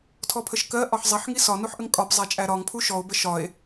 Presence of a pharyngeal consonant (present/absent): present